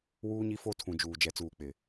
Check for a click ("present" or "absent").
absent